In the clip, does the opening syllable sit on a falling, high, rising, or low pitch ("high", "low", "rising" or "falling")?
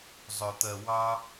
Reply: low